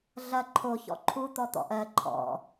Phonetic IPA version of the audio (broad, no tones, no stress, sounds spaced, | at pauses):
ɮ ɐ ǃʰ o ç ɔ̰ ǃʰ u t̪ ɔ t̪ ɔ̰ ʔ ɜ ǃʰ ɔ̰